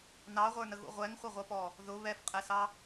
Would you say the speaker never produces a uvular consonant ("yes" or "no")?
no